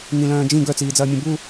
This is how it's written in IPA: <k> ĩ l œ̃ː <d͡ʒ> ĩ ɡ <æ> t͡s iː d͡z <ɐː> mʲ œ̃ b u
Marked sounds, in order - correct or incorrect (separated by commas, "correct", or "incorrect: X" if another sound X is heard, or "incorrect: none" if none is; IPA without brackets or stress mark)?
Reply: incorrect: ŋ, correct, incorrect: œ, correct